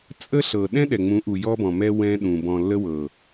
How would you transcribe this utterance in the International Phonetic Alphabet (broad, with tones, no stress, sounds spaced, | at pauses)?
t͡sʼ ə˦ ɬ ɤ˨ ɗ ɛ̃˦ ɗ ɛ˨ ŋ͡m ũ˨˦ ʔ u˨ j ɔ˦ b ɔ̃˨ m ɛ˦ w ɛ̃˦ ɗ ũ˨ b ɔ̃˨ lː ə˦ w ɤ˨